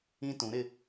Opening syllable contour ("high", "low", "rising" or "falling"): high